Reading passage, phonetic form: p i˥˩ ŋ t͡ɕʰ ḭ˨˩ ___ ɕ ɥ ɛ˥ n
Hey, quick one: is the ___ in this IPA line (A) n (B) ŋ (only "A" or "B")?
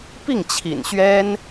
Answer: A